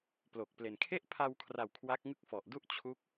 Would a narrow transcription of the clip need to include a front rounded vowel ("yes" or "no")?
no